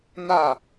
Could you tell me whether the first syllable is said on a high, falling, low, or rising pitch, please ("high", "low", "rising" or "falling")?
falling